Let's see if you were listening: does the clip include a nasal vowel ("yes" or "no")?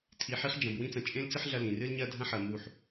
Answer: yes